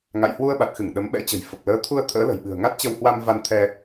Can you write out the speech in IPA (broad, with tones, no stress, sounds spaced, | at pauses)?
ŋ a̰˧˨ j h w u˧ ə̯ ɓ a˨˩ t̚ x ɨ˧˩ ŋ ɗ ə˨˦ m ɓ ɛ̰˧˥ t͡ɕ ə̤˨˩ j f ə˨˩ p̚ l əː˨˦ t̪ʰ u˧ ə̯ t̪ʰ ə̰ː˧˥ l ə̤˨˩ j ɓ ɨ̤˨˩ ə̯ ŋ a˦˥ t̚ t͡ɕ ə˧ w h w a˧ m v a˧ n t̪ʰ ɛ˧